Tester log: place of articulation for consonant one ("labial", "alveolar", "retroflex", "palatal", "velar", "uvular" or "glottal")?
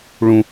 retroflex